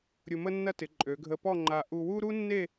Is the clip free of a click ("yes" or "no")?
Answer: no